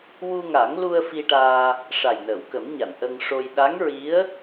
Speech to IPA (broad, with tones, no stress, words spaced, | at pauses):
wu˧ŋa˨˩˦ŋlu˧ə̯ fi˧ʈaː˧ | ʂa˨˩jnəː˨˩˨wkə˨˩˦mɲa˨˩˨n ʔə˧ŋʂo˧j ɗa˧˥ŋɹi˧˥ə̯